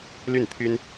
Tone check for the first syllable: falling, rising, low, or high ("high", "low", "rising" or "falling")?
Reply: falling